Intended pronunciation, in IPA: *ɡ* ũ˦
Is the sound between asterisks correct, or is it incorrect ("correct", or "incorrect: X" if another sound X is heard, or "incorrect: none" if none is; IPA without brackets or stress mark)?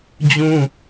incorrect: d͡ʑ